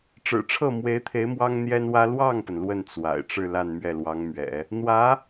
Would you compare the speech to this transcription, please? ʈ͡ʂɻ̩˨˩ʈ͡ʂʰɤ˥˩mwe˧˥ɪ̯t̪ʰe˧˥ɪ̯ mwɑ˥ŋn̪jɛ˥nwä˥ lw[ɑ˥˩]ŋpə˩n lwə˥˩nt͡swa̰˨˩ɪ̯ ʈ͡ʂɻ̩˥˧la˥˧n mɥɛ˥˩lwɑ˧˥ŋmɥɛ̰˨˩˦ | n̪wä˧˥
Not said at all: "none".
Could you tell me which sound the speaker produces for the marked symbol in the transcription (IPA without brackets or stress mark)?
ɑ˥˩